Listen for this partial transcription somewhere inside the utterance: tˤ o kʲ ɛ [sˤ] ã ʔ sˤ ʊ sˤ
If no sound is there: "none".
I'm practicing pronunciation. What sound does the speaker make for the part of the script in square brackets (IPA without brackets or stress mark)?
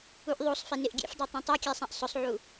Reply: sˤ